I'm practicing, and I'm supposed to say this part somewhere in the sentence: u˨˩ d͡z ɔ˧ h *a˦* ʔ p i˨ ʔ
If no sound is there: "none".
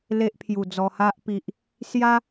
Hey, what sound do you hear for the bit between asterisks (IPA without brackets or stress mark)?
a˦